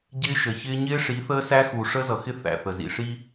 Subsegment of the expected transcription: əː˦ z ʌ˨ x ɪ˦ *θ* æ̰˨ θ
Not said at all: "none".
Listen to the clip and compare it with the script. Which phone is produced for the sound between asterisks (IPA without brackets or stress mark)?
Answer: θ